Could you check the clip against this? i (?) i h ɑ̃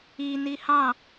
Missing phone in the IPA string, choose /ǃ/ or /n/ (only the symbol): n